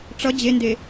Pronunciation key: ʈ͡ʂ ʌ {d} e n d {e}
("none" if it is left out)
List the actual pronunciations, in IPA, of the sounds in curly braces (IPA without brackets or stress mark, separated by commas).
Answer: d͡ʑ, e